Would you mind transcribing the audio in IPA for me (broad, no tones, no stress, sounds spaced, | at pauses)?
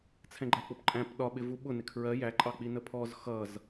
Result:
t͡sʰ ɛ̃ ɡ͡ǃ æ k͡p ʊ p ǃʼ æ̃ p ɗ ɒ ɓ ɪ v u ɓ ʊ n ɪ kʰ ɹ ɜ j æ ǃʼ ɑ k͡p i n ə pʰ ɔ z x ʌ z